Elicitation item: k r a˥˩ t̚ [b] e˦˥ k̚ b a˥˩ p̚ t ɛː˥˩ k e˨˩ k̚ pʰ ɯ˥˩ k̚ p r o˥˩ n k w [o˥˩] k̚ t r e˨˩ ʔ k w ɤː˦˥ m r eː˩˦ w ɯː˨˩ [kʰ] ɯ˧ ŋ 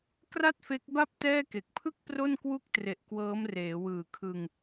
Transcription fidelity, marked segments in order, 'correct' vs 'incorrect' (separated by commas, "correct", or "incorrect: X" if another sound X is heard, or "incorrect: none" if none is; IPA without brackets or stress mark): incorrect: f, incorrect: u˥˩, correct